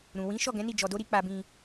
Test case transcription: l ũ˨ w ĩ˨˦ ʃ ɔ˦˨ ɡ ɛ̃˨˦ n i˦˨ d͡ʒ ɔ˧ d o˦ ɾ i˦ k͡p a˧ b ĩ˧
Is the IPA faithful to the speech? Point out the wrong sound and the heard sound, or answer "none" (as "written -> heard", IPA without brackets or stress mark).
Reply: l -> ɾ